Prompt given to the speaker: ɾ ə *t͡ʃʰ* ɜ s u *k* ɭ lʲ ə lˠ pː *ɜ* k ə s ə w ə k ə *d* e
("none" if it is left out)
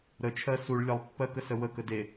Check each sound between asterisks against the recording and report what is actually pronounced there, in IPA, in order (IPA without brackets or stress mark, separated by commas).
t͡ʃʰ, none, ɜ, d